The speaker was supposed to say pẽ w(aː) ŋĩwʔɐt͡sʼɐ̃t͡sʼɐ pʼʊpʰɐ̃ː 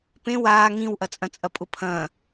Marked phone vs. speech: correct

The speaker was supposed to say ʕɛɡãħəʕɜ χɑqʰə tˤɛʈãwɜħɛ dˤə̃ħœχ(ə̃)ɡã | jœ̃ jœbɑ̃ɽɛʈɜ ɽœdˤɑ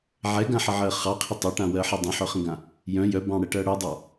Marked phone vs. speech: correct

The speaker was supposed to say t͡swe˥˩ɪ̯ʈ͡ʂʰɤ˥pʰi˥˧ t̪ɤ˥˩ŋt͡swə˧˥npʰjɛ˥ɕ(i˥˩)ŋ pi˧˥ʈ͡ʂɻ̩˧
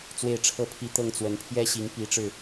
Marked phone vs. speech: incorrect: i˧˥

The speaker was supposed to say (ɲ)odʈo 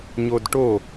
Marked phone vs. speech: correct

